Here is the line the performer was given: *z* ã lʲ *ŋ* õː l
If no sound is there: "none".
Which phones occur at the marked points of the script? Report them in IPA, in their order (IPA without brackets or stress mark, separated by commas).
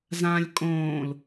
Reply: z, kʼ